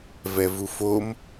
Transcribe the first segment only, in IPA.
v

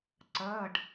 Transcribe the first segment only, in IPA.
ǀ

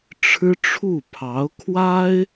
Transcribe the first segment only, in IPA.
ʈ͡ʂʰ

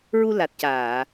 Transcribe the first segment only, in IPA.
ɹ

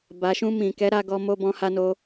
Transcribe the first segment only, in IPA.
b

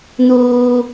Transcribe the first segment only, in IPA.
n̪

